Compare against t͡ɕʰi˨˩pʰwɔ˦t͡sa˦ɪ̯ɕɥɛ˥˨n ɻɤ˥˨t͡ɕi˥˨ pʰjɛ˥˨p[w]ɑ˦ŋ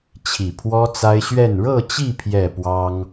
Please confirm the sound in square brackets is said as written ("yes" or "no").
yes